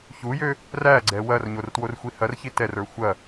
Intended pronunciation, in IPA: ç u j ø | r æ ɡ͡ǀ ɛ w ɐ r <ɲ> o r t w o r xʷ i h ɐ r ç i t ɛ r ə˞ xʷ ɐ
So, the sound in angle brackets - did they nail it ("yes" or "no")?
yes